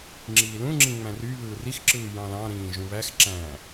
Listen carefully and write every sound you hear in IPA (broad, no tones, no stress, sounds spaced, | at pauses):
ŋ͡ǁ iː l ũ ŋ͡ǁ ĩ ŋ͡m æ̃ r y β ɯː r i x ǁ ɯː j ɑ̃ l ɑ̃ ɾ ĩː ʒ ũ β æ x ǁ æ̃ː